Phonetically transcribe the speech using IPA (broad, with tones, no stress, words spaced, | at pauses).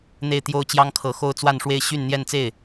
n̪e˥˩ɪ̯ t̪jo˥ʊ̯ t͡ɕjɑ˥ŋkʰɤ˧˥ xo˥ʊ̯t͡swa˥˧nʂwe˥˧ɪ̯ ɕy˥˧nn̪jɛ˥˧nt͡se˥˩ɪ̯